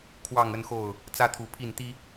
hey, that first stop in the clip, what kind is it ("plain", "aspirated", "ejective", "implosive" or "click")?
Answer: aspirated